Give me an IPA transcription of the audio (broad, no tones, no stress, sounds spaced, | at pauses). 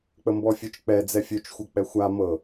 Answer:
k͡p ə m b ɔ fʲ ø t͡ʃ k͡p ɛ d͡z ɛ fʲ ø t͡ʃ xʷ ɤ k͡p ɛ xʷ a m ɤ